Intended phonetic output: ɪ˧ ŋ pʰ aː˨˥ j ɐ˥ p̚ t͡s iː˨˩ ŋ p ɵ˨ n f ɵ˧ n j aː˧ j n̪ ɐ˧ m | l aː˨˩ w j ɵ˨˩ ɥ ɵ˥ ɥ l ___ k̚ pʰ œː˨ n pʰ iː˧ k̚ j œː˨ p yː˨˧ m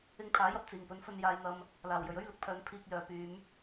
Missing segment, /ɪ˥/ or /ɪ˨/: ɪ˨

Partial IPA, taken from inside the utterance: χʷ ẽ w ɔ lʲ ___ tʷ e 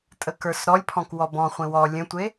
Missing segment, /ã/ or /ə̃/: ə̃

